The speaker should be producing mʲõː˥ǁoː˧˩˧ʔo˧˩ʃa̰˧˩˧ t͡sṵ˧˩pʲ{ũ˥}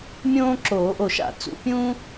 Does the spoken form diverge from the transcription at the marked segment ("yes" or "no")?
no